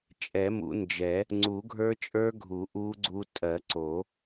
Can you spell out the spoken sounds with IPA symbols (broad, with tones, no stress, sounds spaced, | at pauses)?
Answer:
t͡ʃʼ ɛ˨˩˦ m ṵ˨˩˦ n d͡ʒ ɛ˨˩˦ | ŋ͡ǀ u˨˩˦ ɡʱ ə˞˦˥ t͡ʃʼ ə˞˦˥ ɡʱ u˨˩˦ ʔ u˦˥ ɡ͡ǀ u˦˥ tʼ ɜ˨˩˦ ǀ o˨˩˦